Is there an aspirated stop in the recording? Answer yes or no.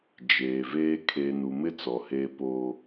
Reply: yes